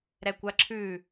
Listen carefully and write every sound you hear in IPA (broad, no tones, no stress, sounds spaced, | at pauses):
ɾ ɛ kʷ a ǁʰ ʉ